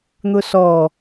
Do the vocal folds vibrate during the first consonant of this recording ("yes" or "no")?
yes